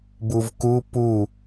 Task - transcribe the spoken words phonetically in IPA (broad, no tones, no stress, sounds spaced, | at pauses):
b u v k u p u